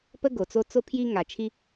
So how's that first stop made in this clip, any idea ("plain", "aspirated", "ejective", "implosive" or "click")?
plain